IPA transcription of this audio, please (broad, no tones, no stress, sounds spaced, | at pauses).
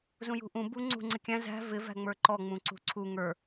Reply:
z ũ j ṳ ʔ ũ b u ŋ͡ǀ ṳ ŋ͡ǀ ɪ kʲ æ̃ z æ̤ v ɪ v æ̤ ŋ͡m ə˞ ǃ ɔ ŋ͡m ũ ǀ ṳ ǀʰ u ŋ ə˞